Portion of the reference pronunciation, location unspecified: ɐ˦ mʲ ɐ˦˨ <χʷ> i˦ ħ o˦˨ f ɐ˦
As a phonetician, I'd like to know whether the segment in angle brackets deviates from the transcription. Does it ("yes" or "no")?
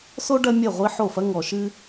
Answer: yes